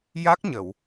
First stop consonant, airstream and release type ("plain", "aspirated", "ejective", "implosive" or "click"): plain